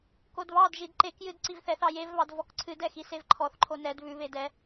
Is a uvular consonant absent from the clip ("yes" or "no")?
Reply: yes